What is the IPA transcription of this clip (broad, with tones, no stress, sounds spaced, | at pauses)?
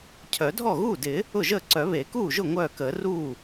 cʰ œ˨˩˦ dʱ ɔ˥˩ ɣ uː˥˩ d ɪ˨˩˦ | ʊ˥˩ ʒ əː˥˩ ǀ œ˨˩˦ β e˨˩˦ k uː˥˩ ʒ ʊ˥˩ ŋʷ œː˥˩ k əː˨˩˦ r uː˥˩